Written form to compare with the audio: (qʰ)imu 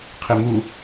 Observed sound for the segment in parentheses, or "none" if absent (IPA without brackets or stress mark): qʰ